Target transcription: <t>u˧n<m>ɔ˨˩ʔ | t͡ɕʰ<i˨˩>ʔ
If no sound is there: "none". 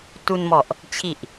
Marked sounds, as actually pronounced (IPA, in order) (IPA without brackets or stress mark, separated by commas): t, m, i˨˩